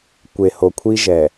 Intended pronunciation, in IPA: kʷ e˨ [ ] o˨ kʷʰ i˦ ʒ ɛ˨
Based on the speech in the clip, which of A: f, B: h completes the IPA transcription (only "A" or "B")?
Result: B